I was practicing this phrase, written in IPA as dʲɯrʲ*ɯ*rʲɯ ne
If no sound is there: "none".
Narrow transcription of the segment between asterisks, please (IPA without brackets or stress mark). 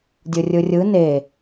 ɯ